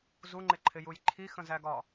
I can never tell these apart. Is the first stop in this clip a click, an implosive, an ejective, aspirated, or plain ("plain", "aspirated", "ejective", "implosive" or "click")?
click